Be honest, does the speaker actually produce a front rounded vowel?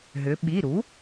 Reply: yes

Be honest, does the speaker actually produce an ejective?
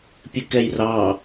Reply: no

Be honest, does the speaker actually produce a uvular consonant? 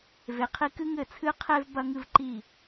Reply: yes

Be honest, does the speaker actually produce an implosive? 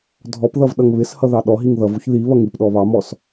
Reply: yes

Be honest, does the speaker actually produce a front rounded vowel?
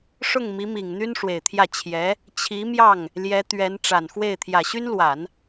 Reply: yes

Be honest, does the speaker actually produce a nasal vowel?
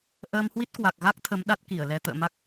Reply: no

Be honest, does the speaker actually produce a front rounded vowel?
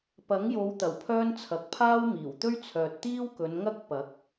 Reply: yes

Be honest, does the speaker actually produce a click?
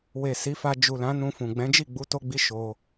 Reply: no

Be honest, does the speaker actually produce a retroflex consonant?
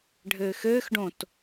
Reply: yes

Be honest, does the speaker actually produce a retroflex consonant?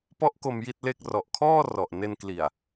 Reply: no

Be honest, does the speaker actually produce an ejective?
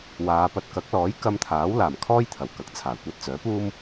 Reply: no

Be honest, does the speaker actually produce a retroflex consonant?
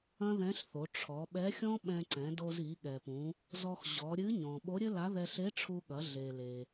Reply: yes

